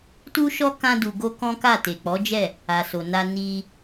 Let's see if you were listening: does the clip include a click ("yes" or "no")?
no